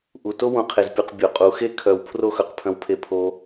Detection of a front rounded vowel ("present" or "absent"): present